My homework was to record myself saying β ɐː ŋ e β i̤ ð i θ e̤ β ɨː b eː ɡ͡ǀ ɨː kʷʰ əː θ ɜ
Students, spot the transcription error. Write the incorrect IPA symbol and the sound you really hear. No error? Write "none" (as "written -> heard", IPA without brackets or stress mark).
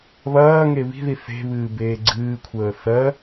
none